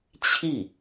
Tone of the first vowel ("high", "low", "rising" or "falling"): falling